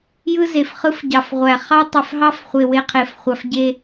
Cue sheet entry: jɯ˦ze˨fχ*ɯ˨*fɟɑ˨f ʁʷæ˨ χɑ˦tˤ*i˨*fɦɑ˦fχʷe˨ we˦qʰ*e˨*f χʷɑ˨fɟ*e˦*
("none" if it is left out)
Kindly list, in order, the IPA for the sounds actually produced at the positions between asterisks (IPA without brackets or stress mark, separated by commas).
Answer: ɯ˦, e˨, e˨, e˦